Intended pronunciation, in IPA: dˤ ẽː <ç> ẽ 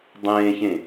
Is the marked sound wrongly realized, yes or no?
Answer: no